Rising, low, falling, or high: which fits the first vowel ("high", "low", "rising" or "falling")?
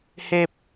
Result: low